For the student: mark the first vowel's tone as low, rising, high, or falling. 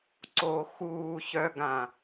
low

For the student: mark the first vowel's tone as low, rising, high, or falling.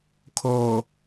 low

